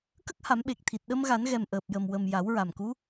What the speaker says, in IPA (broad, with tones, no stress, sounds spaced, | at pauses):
k ə˦˥ k̚ h a˨˩˦ m ɓ e˨˩ k̚ t̪ʰ i˨˩ t̚ ɗ ə˧ m ɣ a˨˩˦ n ɣ ɛ˨˩ m ʔ əː˨˩ p̚ j ə˨˩ m w ə˨˩ m j a˨˩˦ w ɹ a˨˩ m k u˧˥